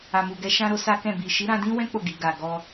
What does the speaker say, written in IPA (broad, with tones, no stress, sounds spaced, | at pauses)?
a˨ m u˨ ɡ ɛ˧ ʃ ã˦ ɾ o˦ s a˦ k ɛ̃˦˨ b i˨ ʃ i˨˦ ɾ ã˧ d ĩ˦ w ɛ̃˦ k͡p o˦˨ ɡ i˨ ɡ a˨ ɡ ɔ˧